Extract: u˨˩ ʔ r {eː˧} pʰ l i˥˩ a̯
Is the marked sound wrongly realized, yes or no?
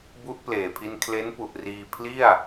yes